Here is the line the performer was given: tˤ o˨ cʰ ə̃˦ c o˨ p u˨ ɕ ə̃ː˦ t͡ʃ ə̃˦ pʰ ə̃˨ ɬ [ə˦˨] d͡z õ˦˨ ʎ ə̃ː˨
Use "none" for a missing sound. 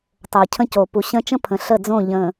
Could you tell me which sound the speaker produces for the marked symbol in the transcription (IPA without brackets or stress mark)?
ə˦˨